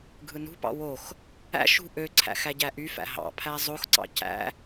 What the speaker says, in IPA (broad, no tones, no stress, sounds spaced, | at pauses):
ɡʱ ɯ n ṳ p ɑ̰ w o x | æ̰ ʃ ṳ ʔ ø ǀʰ æ̰ x æ ɟ æ ʔ y f æ̰ ɦ ɑ̰ pʰ æ zˤ o x ǀ ɑ̰ c æ̰